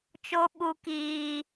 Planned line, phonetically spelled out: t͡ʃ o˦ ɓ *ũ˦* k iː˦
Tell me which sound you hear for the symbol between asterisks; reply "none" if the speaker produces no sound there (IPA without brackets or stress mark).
u˦